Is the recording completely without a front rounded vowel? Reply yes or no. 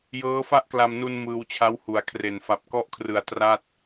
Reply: yes